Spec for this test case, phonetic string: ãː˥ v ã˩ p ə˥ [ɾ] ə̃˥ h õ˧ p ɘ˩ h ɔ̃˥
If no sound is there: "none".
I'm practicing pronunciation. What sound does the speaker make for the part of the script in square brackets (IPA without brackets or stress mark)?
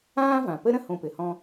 ɾ